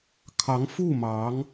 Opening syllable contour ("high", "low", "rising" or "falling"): rising